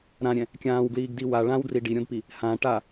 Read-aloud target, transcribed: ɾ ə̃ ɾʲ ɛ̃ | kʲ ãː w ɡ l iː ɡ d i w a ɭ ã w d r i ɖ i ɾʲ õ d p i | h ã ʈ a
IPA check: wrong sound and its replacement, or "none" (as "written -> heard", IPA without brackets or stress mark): ə̃ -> ã